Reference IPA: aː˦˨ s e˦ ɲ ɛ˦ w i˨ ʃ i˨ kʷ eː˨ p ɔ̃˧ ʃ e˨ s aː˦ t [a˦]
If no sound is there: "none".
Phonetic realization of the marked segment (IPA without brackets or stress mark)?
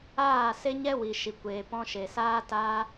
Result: aː˦